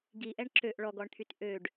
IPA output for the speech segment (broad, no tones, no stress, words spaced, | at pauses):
ɡiʔɛɳ ǁøʔ ɭɔɡɔɳt̪ʰyt ʔøɖ